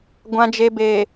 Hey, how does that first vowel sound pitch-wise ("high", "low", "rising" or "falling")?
low